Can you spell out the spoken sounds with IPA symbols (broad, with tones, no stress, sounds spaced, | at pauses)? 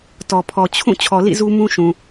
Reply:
t ɔ˨ pʰ ɔ˨ t͡ɕʰ ũ˦˨ t͡ɕʰ ɔ˨ l ḭ˦˨ z u˦ m ũ˦ ʃ ũ˨